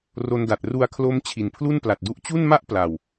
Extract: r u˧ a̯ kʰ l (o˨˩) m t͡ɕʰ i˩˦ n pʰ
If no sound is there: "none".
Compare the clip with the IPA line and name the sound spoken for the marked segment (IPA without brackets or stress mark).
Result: o˦˥